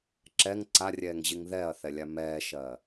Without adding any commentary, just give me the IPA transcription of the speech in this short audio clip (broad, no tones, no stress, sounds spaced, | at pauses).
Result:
ǁ ɛ ŋ ǀ a rʲ ɛː ŋ ʑ i ŋ ð ɛ ɐ̯ θ ɛ lʲ a m ɛː ʃ ɜ